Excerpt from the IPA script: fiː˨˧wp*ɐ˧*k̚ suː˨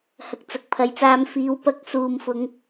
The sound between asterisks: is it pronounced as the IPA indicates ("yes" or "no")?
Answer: yes